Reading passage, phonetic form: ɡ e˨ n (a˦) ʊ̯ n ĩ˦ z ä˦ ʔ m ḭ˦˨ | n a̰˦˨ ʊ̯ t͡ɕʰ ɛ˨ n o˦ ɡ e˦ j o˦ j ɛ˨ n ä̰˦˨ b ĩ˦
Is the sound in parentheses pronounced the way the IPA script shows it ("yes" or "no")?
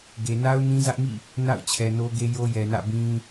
yes